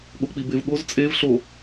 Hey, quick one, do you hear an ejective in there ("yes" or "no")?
yes